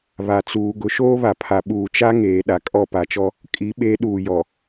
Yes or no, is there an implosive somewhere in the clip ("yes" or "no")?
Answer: yes